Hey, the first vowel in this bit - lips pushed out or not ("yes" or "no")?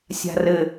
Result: no